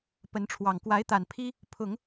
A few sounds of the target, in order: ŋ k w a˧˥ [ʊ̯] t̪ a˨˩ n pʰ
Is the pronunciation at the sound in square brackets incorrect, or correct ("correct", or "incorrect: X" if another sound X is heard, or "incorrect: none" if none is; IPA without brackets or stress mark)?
incorrect: ɪ̯